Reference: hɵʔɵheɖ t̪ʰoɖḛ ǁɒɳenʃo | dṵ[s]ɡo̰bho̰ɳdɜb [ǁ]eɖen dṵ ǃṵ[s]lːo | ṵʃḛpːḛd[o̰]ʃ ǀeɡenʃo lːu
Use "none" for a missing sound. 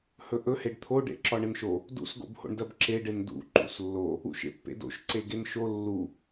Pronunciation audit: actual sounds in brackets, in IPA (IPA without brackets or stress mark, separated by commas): s, ǁ, s, o̰